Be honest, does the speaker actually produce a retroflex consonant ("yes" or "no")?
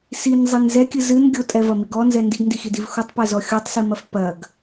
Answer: no